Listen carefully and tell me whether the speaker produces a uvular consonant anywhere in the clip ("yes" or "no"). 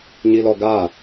no